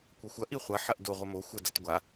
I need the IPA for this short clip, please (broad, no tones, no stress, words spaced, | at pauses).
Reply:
kʷʌxʷɐ ʔiχʷɐ ħɐʔdo ʁʷəmo xʷə dʌtɡʷa